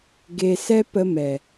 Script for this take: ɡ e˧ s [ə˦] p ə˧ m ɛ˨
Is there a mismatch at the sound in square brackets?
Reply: yes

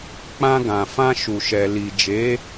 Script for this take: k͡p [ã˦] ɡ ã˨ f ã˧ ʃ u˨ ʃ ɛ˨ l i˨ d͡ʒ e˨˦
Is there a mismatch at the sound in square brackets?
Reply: yes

